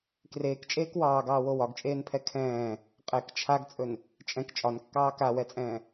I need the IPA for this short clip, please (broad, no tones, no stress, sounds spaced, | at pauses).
k r eː k t͡ʃʼ eː k w ɑː ɡ ɑː w o w ɒ ɡ t͡ʃʼ eː n pʰ ɛ kʰ ɛ̃ː | qʼ ɛ k t͡ʃʰ a ɡ t͡sʼ ɵ n | t͡ʃʼ ɛ̃ k t͡ʃʼ ɒ n kː ɑː k a w ɛ t͡sʼ ɛ̃ː